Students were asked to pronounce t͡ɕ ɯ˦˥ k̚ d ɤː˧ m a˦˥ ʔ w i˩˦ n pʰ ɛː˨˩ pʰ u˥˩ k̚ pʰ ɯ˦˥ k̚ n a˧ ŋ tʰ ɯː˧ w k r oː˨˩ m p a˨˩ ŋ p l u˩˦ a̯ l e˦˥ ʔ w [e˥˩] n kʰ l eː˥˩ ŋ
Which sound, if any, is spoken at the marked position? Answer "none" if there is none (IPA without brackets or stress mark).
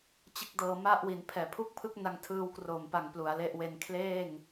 e˧